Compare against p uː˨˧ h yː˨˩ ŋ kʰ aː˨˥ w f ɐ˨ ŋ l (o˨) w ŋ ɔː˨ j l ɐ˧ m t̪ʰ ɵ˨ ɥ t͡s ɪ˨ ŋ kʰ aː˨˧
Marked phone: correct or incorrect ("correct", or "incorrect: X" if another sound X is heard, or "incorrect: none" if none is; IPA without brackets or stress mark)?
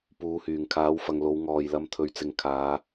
incorrect: o˨˧